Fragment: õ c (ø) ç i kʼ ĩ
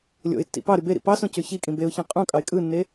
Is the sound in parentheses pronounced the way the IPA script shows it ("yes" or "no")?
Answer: yes